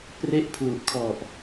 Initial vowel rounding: unrounded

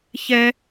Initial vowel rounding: unrounded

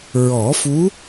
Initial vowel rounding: rounded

